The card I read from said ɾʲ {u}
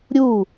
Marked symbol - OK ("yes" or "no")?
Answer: yes